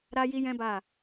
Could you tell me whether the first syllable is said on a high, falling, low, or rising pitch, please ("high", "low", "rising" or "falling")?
high